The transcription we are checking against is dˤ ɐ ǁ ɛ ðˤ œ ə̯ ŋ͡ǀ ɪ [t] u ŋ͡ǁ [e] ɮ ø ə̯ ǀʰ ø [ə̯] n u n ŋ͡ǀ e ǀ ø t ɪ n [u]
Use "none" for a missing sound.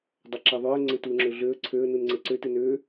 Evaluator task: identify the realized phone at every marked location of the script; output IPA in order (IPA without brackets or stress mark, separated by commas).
t, ø, ə̯, ø